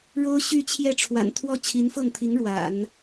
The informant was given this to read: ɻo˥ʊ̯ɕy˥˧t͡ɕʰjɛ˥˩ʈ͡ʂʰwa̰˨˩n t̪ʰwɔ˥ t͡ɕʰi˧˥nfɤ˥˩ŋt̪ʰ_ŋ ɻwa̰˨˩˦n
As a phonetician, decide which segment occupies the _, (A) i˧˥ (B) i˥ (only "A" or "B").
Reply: A